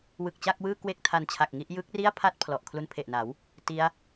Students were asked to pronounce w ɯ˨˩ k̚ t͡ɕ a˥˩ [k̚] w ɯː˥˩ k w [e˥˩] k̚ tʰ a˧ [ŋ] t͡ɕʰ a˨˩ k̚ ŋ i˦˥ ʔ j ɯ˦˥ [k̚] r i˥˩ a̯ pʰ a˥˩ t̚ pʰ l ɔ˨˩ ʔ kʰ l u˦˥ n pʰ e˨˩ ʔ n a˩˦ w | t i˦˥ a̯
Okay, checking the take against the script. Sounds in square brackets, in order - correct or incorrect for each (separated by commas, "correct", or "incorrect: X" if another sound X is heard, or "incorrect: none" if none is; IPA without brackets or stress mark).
correct, correct, incorrect: n, correct